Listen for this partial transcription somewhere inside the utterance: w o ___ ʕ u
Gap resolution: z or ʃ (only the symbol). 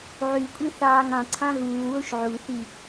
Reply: ʃ